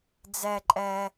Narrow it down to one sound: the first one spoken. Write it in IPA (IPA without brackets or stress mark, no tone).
d͡z